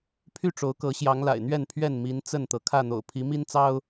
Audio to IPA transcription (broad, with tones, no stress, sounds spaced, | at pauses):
pʰ y˥˨ ʈ͡ʂ o˨˦ ʊ̯ k ɤ˨˦ ɕ j ɑ˨˦ ŋ l a̰˨˩ ɪ̯ n̪ ɥ ɛ˥˨ n pʰ ɥ ɛ˥˨ n m i˨˦ n t͡s ə˥˨ n t̪ ɤ˩ kʰ ä˥˨ n̪ o̰˨˩ ʊ̯ pʰ i˨˦ m i˦ n t͡s ɑ˦ ʊ̯